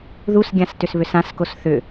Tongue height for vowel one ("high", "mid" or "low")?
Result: high